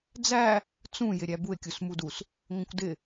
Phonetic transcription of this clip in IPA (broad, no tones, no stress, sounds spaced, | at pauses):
d͡z æ | t͡s ũ j ɪ ɾʲ æ b u e̯ kʲ u s m u d u s | ŋʷ ə̃ kʷ d ɪ